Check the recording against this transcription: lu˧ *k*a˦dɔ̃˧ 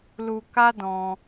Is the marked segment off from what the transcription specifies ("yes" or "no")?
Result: no